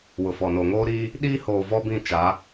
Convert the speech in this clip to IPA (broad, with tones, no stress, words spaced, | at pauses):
wʊ˨fɔ˨noː˨ ŋoː˦ɾiː˦ | ɗiː˦hoː˨ vɔ˦bĩ˦˨t͡ʃa˨˦